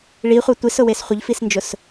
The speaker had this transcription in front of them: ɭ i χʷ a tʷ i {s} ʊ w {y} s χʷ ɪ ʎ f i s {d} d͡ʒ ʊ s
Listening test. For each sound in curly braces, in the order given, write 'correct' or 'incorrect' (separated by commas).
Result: correct, incorrect, incorrect